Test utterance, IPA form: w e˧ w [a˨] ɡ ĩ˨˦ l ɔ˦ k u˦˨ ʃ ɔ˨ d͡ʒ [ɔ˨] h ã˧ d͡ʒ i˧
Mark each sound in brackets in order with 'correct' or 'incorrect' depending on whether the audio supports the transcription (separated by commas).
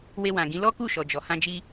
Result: incorrect, correct